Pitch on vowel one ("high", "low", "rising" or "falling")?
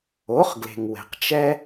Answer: rising